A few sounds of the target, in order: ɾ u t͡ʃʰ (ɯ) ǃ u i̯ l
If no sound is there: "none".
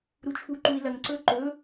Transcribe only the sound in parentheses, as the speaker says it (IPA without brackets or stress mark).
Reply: u